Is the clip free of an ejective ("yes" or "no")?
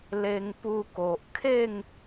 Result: yes